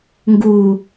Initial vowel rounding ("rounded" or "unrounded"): rounded